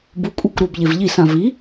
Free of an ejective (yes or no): no